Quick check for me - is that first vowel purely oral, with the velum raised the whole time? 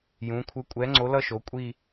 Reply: no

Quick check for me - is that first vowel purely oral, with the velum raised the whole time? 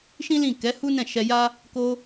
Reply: no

